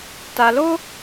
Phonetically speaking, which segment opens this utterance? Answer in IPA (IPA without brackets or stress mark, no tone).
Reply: t